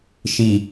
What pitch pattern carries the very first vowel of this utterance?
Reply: low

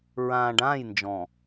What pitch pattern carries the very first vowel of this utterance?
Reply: low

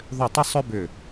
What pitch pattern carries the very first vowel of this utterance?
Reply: falling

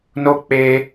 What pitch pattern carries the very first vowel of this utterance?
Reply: high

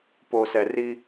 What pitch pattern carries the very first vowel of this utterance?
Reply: low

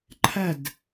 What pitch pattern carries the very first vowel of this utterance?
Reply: falling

